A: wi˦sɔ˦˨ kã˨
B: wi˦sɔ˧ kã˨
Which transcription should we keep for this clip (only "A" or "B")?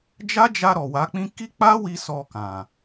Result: B